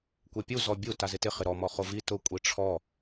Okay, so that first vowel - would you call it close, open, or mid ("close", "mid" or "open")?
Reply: mid